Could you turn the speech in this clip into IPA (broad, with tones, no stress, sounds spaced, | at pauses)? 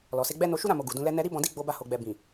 l ɔ˨ s e˧ ɡ͡b ɛ˦ n o˧ ʃ u˦ ɾ ã˦˨ m o˨ ɡ u˨ d ũ˧ l ɛ˧ n ɛ˧ ɾ i˦ b ɔ̃˧ d i˦ ɡ͡b o˧ b a˧ h o˨ ɡ͡b ɛ˨ b ĩ˨